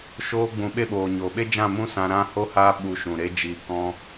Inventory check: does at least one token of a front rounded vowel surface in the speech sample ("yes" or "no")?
no